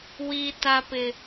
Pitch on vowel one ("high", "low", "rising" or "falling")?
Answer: high